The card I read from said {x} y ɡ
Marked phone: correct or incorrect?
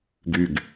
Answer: incorrect